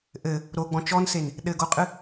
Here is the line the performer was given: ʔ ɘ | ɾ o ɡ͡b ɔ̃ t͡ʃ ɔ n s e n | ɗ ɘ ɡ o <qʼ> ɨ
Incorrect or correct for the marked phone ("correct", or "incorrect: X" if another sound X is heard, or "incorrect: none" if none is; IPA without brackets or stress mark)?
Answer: correct